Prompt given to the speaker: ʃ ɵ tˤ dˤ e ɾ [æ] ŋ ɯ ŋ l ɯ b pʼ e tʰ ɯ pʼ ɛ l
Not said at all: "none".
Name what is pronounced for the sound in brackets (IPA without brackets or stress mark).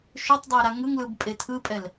a